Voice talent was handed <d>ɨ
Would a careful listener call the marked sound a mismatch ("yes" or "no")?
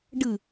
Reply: yes